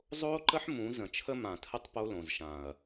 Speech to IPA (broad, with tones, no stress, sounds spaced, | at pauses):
zˤ oː˦ ǃ ə˦ ħ m ũ˨˦ z ə̃˨ t͡ʃʰ ə˦ m ã˨ tʰ ə˦ tˤ p o˦ l õ˨ z ʃ ã˨ ɐ̯